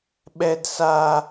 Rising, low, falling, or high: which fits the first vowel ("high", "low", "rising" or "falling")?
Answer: high